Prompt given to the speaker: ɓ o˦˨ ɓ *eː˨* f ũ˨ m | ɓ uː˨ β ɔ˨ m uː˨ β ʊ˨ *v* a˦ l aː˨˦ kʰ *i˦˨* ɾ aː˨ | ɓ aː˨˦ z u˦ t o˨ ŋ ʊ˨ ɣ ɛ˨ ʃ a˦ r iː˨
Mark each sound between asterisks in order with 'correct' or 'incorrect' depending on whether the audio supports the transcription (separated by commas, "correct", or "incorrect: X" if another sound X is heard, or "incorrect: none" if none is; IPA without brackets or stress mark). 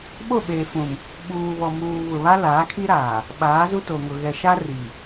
correct, incorrect: β, incorrect: i˦